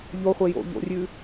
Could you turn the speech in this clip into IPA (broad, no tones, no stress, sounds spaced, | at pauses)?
ʎ o χʷ e j o̰ ʎ o̰ rʲ ʉ